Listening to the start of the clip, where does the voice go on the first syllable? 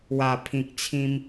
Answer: low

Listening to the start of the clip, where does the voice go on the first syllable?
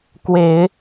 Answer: low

